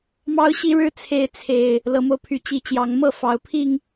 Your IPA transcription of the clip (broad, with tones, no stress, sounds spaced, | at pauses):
m ɑ˦ ʊ̯ ɕ i˦ ɻ ɻ̩˥˨ t͡sʰ e˦ ɪ̯ t͡sʰ e˨˩ ɪ̯ | l ɤ˨˦ m o˧ ʊ̯ pʰ y˨˩ t͡ɕ i˨˦ t͡ɕ j ɑ˨˦ ŋ m ɤ˥˨ f ɑ˨˦ ʊ̯ pʰ i˥˨ ŋ